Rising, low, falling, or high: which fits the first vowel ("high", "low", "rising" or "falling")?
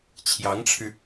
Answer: rising